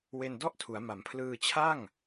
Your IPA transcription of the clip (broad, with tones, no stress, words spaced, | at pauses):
we˧n dɔ˥˩ʔtʰu˩˦a̯ma˩˦mpʰlɯː˧ t͡ɕʰa˥˩ŋ